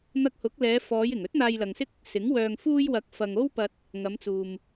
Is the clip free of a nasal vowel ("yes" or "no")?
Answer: yes